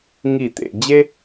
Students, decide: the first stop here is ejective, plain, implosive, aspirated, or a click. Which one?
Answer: plain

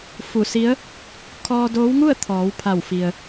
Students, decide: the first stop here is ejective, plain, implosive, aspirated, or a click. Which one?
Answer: aspirated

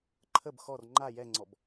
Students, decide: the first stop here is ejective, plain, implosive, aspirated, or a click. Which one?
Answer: click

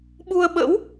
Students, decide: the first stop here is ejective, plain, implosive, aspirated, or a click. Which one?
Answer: implosive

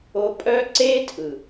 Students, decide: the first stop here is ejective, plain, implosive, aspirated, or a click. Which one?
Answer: ejective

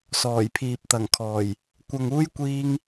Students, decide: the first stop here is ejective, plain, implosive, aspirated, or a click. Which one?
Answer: aspirated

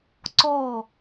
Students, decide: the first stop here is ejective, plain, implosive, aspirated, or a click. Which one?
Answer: click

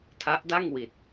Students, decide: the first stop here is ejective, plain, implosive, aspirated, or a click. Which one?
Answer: aspirated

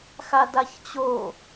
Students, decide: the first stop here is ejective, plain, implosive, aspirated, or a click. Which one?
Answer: plain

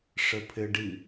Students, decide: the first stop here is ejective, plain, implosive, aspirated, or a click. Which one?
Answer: aspirated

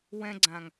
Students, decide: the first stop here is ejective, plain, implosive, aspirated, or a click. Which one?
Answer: click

